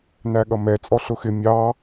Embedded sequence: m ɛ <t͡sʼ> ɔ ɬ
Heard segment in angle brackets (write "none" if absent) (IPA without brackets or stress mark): t͡sʼ